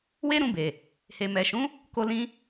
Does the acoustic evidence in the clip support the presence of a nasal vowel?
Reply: yes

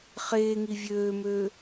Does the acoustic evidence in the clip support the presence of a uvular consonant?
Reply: yes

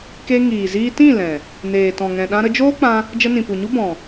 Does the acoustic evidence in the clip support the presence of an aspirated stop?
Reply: no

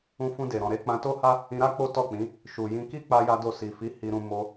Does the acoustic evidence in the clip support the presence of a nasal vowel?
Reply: yes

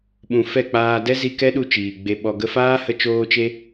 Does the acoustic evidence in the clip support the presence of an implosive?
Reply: yes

